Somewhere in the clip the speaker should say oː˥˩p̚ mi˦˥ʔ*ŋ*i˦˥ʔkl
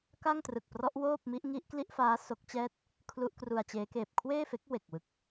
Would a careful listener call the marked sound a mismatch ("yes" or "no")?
no